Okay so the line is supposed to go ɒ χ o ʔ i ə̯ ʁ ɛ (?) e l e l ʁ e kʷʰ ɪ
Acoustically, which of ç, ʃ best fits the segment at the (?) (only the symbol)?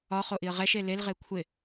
ʃ